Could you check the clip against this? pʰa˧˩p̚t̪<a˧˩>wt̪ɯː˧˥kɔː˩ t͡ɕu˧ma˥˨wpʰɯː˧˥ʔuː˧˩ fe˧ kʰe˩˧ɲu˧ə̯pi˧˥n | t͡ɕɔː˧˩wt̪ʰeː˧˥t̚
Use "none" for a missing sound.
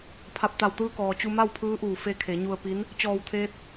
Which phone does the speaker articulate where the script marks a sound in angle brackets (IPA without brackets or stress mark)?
a˧˩